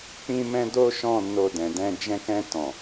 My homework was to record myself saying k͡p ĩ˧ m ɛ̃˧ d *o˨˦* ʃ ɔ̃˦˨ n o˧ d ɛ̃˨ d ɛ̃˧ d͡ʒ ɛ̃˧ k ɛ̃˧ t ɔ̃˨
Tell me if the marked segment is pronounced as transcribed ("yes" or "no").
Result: no